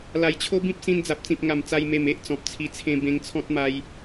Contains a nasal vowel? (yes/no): yes